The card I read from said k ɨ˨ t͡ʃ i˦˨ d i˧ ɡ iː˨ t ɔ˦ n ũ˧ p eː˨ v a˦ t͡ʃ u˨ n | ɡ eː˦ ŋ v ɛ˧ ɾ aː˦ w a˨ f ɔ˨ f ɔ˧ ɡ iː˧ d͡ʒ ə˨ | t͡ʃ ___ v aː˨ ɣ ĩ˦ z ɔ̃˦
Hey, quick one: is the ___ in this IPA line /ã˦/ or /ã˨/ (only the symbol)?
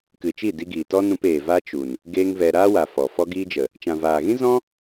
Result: ã˨